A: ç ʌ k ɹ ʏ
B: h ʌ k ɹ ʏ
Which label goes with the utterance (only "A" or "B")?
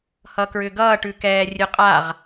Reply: B